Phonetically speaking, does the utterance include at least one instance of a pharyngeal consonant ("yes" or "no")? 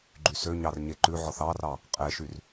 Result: yes